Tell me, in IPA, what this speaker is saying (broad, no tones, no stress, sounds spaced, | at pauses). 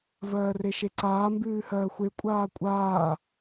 v ɜː r e ʃ e ǀ aː m b ʉː h ɜː xʷ e kʷʼ aː kʷʼ aː